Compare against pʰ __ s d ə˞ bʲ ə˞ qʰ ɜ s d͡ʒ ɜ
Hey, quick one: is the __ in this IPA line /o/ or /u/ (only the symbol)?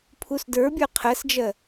u